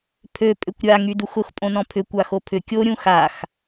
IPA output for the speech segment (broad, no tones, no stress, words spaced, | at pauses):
pʰø pʼʏkʷɾʲa ŋyduxʊx pʼõnɔ̃pʰʏ kʷaxopʰʏ kʲo ɾʲũxax